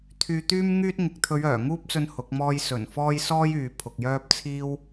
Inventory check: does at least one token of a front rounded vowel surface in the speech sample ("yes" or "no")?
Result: yes